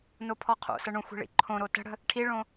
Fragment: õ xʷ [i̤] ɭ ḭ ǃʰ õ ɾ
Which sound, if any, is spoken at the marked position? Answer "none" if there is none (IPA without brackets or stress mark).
i̤